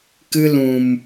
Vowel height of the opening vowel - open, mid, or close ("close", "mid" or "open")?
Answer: close